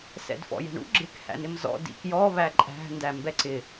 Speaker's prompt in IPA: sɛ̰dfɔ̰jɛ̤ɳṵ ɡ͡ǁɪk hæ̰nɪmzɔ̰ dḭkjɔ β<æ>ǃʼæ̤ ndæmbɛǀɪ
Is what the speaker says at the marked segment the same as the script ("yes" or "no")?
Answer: yes